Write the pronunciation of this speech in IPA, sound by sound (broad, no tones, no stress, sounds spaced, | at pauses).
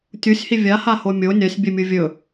tʲ u sʲ h i vʲ a h a h o mʲ o nʲ a sʲ bʲ ɵ mʲ u vʲ ɵ